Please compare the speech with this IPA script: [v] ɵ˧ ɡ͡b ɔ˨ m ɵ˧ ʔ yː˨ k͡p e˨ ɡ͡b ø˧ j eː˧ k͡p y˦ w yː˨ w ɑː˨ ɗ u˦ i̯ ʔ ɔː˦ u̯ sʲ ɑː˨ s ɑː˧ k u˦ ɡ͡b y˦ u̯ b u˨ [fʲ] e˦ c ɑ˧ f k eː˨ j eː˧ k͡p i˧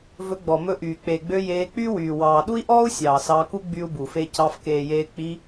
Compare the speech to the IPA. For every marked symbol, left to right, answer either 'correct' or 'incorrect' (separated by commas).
correct, incorrect